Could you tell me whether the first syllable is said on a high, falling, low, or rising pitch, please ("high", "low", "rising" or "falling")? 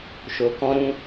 low